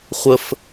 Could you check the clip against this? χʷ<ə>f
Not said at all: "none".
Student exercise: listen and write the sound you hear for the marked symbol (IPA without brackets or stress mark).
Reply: ə